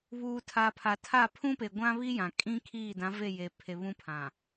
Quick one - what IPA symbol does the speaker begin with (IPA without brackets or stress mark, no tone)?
β